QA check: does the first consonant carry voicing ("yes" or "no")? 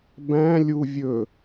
yes